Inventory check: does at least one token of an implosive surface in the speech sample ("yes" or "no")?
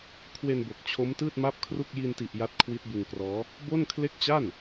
no